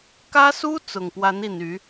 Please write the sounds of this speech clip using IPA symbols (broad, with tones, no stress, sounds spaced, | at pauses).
k ä˥ s u˥ t͡s ʊ˨˩ ŋ p w a˧˥ n i˨˩ n y˧˥